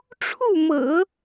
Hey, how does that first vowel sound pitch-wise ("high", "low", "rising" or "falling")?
falling